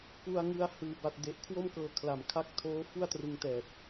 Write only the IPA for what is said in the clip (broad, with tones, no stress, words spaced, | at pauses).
ku˧a̯ŋɯ˧a̯ hɯː˩˦ba˨˩t̚de˨˩ʔ kʰwo˥˩mkɤː˧kʰla˨˩m kʰa˦˥k̚tʰoː˦˥ fu˥˩a̯trɯ˧ŋtɛː˨˩t̚